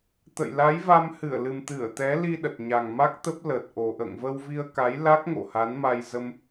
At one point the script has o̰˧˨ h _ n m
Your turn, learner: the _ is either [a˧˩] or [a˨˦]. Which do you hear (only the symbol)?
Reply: a˨˦